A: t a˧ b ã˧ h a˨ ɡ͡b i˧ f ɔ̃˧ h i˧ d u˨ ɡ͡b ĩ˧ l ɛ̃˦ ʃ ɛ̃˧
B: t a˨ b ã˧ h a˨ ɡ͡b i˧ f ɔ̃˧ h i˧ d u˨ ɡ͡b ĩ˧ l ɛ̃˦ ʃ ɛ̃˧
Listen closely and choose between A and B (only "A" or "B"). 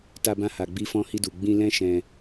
A